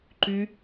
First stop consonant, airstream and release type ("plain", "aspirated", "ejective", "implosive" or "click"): click